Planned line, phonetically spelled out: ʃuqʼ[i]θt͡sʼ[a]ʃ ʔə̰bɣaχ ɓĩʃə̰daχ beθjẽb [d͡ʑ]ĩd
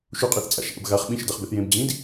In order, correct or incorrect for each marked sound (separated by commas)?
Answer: incorrect, incorrect, correct